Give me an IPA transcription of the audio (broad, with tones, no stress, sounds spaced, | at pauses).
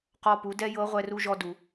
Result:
q ɔ˧ p u˩˧ d ɛ˥ j ɤ˧˥ ʁʷ ɛ˧ r u˧ ʒ ɔ˧ d u˩